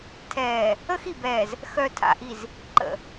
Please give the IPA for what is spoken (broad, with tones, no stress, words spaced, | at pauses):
tʰɛː˨ | ə˦xi˨bɛː˨z | xœ˨tʰa̰˨ʔi˨z | ǃə̰˨